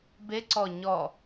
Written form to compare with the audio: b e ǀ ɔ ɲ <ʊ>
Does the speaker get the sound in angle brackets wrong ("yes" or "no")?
yes